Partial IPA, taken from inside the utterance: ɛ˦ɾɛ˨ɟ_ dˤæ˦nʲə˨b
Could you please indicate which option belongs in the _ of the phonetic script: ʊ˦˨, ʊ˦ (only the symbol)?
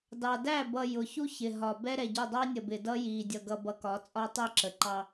ʊ˦˨